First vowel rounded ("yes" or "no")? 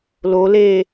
yes